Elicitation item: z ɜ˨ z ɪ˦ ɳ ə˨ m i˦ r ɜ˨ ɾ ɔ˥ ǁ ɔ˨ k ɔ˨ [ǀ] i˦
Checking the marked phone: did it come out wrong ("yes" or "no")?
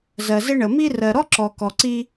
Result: no